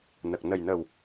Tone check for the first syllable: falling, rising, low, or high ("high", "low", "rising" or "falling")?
low